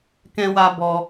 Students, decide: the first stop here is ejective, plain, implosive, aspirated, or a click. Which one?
plain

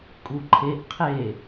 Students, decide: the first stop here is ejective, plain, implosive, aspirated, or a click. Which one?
ejective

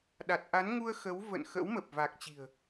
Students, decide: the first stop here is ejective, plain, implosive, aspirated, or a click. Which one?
implosive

